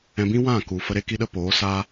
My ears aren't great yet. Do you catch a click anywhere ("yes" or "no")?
no